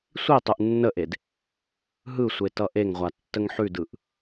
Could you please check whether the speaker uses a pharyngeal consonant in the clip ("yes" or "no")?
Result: yes